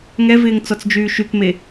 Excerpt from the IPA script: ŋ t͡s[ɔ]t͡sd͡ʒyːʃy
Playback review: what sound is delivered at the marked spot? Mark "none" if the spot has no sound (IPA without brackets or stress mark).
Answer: ɔ